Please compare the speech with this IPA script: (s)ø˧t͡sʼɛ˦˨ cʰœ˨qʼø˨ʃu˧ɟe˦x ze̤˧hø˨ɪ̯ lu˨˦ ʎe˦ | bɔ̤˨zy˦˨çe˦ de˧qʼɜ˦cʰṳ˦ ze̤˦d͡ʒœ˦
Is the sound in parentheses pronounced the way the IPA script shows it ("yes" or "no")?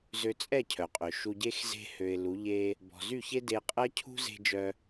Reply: no